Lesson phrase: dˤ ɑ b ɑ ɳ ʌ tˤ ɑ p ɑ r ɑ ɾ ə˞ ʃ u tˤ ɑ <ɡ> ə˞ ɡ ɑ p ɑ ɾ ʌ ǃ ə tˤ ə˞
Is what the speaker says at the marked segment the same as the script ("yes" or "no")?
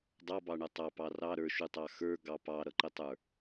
no